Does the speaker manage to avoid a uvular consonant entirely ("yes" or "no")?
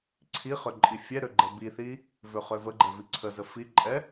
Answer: no